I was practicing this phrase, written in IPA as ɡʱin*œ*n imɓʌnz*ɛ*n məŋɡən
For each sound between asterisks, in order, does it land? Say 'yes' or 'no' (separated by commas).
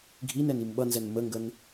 no, yes